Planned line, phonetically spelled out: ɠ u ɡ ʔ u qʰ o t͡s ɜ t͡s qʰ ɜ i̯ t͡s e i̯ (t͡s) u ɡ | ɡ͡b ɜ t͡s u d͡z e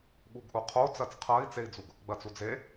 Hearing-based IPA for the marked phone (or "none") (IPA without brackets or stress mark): d͡z